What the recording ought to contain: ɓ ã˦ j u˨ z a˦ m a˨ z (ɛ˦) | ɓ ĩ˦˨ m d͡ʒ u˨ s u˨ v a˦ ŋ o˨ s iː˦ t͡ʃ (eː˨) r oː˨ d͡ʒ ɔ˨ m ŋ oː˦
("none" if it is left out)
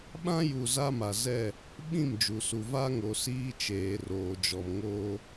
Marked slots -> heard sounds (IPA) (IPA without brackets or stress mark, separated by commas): ɛ˦˨, eː˨